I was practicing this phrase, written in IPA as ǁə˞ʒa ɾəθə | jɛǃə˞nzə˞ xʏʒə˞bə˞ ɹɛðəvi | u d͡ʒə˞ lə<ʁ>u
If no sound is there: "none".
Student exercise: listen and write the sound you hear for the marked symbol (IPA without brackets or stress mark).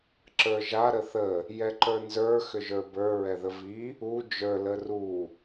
r